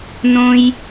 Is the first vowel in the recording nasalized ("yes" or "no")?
yes